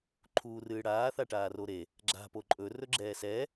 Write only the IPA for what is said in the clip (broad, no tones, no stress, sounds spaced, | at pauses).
ǃʰ uː r ɨː ɽ aː θ a ʈ aː r o ɾ e | ɡ͡ǁ a̤ p o ǃʼ ɵ r ɵ ɡ͡ǁ ɛː s ɛ